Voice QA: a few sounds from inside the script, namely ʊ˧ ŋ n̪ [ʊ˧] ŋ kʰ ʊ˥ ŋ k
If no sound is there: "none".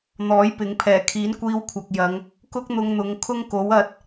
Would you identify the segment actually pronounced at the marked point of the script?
ʊ˨˧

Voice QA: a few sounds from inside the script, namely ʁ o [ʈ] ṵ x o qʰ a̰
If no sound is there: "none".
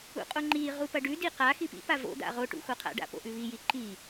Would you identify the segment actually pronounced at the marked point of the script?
ʈ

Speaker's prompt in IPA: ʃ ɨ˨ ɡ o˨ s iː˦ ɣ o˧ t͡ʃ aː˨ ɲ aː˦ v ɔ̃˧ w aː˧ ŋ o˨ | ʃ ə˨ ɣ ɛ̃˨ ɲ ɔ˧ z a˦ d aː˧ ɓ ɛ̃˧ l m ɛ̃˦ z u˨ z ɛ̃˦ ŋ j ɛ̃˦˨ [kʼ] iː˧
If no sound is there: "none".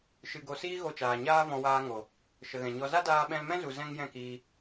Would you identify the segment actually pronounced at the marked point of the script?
k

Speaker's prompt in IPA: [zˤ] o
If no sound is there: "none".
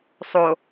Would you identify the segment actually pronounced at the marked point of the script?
sˤ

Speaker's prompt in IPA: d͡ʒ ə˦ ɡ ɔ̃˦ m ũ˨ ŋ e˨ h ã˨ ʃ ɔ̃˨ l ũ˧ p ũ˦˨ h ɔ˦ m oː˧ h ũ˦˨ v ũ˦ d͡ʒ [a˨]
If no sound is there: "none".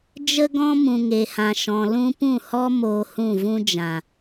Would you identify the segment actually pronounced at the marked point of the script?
ã˨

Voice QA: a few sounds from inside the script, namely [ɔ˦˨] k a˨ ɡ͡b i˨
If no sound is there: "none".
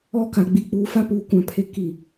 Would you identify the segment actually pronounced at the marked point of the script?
ɔ˦˨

